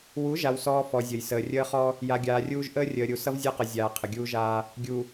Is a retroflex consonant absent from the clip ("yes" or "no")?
yes